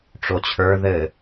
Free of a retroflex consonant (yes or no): no